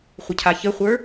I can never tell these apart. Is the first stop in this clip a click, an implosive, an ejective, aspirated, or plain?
aspirated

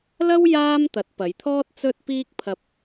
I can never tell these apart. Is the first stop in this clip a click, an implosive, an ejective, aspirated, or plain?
plain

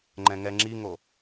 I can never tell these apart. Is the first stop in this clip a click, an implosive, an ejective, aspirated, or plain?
click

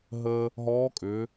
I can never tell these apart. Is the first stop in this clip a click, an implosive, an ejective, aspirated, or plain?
ejective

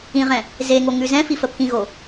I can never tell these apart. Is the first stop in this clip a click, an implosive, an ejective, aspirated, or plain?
aspirated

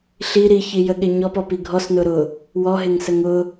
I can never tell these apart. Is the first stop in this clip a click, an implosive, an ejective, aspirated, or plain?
implosive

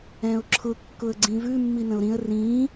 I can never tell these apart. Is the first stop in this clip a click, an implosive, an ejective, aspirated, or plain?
click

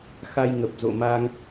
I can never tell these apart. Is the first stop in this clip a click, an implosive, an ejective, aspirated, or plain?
plain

